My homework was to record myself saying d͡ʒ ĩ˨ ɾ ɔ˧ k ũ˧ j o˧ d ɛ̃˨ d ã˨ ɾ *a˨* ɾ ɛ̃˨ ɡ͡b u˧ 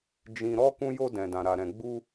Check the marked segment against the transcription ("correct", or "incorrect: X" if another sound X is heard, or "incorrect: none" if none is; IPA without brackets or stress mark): correct